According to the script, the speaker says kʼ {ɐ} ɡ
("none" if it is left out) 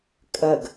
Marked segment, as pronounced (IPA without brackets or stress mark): ɐ